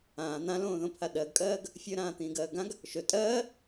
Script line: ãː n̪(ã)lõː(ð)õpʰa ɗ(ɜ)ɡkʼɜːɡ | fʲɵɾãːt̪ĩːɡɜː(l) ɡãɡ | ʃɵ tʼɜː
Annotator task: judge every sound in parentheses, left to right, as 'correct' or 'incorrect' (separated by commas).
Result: correct, correct, correct, incorrect